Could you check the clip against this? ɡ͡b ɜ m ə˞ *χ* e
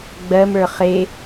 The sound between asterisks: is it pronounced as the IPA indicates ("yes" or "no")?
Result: yes